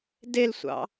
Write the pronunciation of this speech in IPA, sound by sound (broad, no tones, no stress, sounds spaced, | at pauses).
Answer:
d e l sʷ ɑ̰